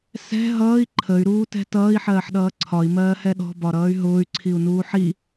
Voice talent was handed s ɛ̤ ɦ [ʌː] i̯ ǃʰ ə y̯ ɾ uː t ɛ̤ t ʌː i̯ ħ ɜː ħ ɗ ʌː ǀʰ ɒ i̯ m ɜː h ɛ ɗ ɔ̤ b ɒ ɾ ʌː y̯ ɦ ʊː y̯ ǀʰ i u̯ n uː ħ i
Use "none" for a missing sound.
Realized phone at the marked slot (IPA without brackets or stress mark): ʌː